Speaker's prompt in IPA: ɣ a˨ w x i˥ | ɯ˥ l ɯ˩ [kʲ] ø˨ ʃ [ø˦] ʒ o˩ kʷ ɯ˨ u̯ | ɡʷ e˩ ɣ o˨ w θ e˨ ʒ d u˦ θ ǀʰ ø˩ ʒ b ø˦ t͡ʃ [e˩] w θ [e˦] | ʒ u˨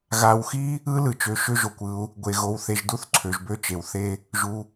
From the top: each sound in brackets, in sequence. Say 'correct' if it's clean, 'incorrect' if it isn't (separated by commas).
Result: incorrect, correct, correct, correct